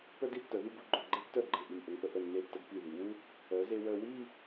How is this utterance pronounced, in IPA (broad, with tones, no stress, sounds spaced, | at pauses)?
p œ˥ d i˥ tː œ˩˧ ð y˥˧ b u˧ ɡ͡ǃ œ˧˩ ɡ͡ǃ e˥ tː œ˥˧ ɡ͡ǃ e˧˩ ʔ y˧˩ m ʔ ə˧ ŋ p ə˧ ʔ ə˧˩ nː e˧˩ tː ə˧ ɡ p i˧˩ ð i˩˧ w u˥ | œ˩˧ z e˧ w œ˧ w i˥˧